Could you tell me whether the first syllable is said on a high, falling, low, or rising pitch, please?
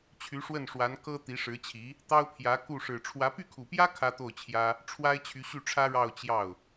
rising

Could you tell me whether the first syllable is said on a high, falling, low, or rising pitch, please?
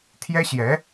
high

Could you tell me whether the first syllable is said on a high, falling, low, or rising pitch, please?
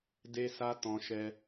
high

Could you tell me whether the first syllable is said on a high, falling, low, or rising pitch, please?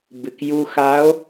low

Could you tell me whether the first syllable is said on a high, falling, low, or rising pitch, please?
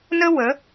high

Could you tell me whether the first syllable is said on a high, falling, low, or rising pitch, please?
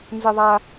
high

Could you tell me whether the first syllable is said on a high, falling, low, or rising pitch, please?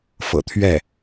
low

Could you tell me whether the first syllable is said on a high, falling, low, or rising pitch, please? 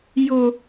high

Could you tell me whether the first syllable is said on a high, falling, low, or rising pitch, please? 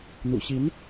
low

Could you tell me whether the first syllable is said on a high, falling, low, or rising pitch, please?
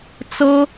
high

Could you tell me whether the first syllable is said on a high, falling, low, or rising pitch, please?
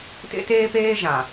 high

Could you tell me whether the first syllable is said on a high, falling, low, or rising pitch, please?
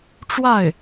falling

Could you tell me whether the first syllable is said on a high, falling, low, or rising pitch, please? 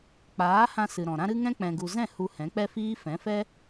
rising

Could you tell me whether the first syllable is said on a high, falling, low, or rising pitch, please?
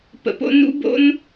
low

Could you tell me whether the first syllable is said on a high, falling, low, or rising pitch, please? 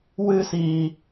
high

